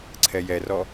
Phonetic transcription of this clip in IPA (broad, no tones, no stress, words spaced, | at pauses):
ǀʰɛjɛrɔ